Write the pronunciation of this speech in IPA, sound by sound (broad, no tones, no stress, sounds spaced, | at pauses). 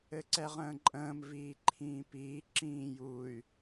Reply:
ɘ ǀ ɛ ʁ ə̃ː ǃʼ ə̃ː m v iː ǃʰ ĩː p iː ǁ ĩː j u y̯